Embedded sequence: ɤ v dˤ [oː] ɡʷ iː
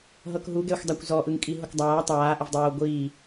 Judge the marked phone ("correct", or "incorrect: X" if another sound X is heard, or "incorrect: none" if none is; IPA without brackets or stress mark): correct